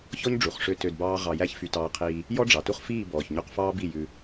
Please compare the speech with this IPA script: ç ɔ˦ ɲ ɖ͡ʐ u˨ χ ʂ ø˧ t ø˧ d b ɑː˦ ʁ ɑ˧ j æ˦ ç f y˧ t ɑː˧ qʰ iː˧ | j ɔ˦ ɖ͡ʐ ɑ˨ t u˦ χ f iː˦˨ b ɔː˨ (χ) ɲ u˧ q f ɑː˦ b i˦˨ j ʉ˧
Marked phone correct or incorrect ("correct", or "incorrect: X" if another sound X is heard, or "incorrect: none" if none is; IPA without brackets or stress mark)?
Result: incorrect: ç